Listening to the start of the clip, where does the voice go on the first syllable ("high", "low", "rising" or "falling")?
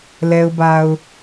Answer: low